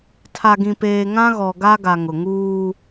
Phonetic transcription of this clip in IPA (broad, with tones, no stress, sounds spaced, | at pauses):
tʰ a˨ ɡ ĩ˨ p eː˨ ŋ ã˦ ɣ ɔ˨ ɡ a˦ ɡ a˨ ŋ ʊ˨ ŋ uː˦